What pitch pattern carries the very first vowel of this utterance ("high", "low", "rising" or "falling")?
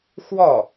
falling